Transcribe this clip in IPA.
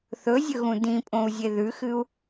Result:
θ ɵ zʲ ɵ ɣ ũ d ĩ pʼ õ u̯ zʲ e ð ʉ x ɨ u̯

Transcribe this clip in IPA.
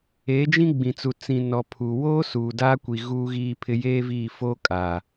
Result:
eː˨˦ d͡ʒ ĩ˦ ɡ͡b ĩ˨ t͡s u˨ t͡s ĩ˨ n ɔ˨ pʰ uː˨ w oː˦ s uː˨ d aː˦ kʷ i˨ ɣ uː˦ ɣ iː˦ pʰ ɪ˦ j eː˦ v iː˦˨ f oː˦ kʼ aː˨

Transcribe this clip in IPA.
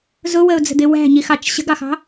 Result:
z ʊ w ə ʊ̯ d͡z ə̤ d̪ ɪ w æ̤ ɲ i x ɑ t͡ʃ ɕ ə̤ ɡ ɑ x ɑ̤

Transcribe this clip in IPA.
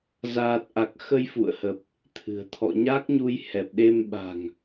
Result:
z aː˨˩ t̚ ʔ a˨˩ k̚ x ə˧ j f ṵ˧˨ ə̯ h ə˨˩ p̚ | t̪ʰ ɨ̤˨˩ ə̯ t̪ʰ ɔ̰˧˨ ɲ a˦˥ k̚ ɲ u˧ j h ɛ˨˩ p̚ ɗ e˧ m ɓ a̤˨˩ ŋ

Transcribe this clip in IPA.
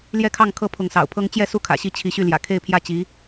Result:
l j ɛ˥˧ kʰ ɑ˥˩ ŋ kʰ ɤ˥ pʰ ʊ˧˥ ŋ s ɑ̰˨˩ ʊ̯ pʰ ɤ˥ ŋ t͡ɕ j ɛ˥˧ s u˥˩ kʰ ä̰˨˩ ɕ i˧˥ t͡ɕʰ i˧˥ ɕ y˥˩ l j ä̰˨˩ kʰ e˥˧ ɪ̯ pʰ j ä˥˩ t͡ɕ i˧˥

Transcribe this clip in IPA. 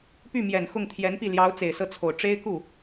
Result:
p y˥˩ m j ɛ˨˩ n x ʊ˥˩ ŋ t̪ʰ j ɛ˧˥ n p i˥˩ l j ɑ˧˥ ʊ̯ t͡s e˨˩ ɪ̯ s ɤ˥˩ t͡sʰ o˨˩ ʊ̯ ʈ͡ʂ e˥ ɪ̯ k u˥˩

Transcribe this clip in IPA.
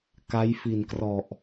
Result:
k a˦˥ j f i˨˩ n k r ɔ˨˩ ʔ

